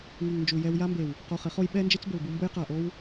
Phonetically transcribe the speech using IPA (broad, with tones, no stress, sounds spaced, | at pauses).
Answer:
ŋ i˨ ŋ n d͡ʒ u˨ j ɛ˧ w j a˦ m b e˨ w | q o˧ χ ɪ˨˦ χ o˦ j ɓ ɛ˦ n d͡ʒ ɪ˦ t͡s b ʊ˨ l b u˧ m b ʊ˧ j q a˨ ʔ o˧ w